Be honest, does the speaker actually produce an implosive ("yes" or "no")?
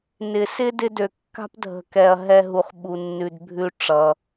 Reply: yes